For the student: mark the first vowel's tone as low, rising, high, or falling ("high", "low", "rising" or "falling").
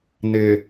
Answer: low